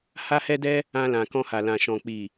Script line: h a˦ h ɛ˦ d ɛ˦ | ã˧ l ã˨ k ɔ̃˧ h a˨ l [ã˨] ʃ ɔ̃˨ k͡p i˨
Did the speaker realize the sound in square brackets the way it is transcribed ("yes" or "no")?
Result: yes